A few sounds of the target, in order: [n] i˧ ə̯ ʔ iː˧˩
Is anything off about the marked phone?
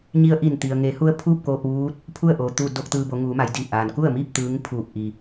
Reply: yes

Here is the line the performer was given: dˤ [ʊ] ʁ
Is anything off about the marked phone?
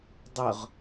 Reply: no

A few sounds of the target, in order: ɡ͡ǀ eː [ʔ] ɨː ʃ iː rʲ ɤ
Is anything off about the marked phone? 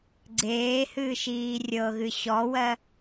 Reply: yes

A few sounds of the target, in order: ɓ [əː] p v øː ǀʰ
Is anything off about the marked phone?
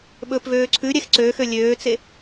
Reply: yes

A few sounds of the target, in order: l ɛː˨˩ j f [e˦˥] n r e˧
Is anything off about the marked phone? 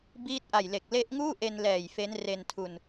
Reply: no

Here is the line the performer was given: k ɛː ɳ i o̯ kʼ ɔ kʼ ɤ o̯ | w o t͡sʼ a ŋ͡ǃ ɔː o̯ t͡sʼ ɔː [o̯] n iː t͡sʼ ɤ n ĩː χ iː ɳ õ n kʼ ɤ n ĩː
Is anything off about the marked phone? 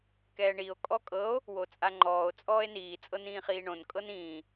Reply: yes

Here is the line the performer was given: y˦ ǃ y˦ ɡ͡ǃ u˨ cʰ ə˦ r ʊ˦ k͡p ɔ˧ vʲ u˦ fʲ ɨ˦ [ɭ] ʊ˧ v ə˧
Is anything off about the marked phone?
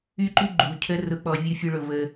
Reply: no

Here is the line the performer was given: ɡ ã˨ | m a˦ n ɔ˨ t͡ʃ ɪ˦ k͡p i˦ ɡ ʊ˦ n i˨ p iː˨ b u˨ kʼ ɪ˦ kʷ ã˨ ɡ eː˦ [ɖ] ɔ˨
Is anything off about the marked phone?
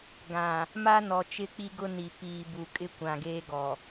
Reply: yes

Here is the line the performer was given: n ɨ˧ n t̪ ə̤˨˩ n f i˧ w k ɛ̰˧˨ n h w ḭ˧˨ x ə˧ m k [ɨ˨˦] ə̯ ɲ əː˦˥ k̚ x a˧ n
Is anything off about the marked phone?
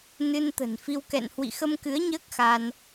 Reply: no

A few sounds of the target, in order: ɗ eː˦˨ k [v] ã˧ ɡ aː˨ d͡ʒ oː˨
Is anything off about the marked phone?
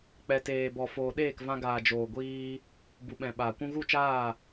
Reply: no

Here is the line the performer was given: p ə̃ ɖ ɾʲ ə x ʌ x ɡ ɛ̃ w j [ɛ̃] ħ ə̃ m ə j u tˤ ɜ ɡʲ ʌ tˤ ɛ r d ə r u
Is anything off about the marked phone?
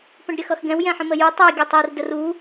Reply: no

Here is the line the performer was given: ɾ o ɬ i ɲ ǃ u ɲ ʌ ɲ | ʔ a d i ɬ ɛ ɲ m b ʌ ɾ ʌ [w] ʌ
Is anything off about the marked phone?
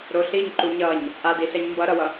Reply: no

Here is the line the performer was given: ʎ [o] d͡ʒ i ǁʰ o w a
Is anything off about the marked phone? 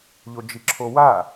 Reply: no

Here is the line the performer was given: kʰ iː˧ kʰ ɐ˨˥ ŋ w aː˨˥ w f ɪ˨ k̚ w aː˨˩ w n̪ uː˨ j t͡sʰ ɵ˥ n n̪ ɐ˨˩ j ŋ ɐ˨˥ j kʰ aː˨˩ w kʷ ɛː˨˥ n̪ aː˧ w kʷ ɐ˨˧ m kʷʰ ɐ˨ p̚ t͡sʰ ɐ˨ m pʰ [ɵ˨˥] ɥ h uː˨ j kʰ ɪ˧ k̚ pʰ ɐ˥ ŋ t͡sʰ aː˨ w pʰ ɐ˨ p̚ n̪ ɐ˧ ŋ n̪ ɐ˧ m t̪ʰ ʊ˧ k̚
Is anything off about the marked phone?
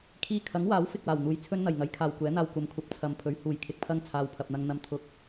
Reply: no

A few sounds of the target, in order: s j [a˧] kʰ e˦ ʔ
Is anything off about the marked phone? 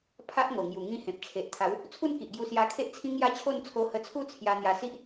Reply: no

